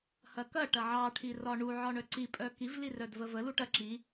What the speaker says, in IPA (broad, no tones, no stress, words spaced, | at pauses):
hɐkɐ ʈɐʕɑ ʈʰirɒɳu ʕɒɳœǀi pʼœkiv lirœdvəvə luʈɐ ǁi